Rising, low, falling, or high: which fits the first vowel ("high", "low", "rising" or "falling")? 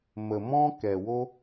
low